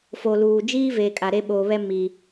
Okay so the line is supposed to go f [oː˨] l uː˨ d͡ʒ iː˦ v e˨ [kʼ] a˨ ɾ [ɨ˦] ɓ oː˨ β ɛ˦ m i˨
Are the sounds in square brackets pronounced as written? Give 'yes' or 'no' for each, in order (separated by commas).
no, yes, no